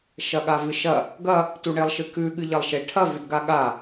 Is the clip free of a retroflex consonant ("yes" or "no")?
no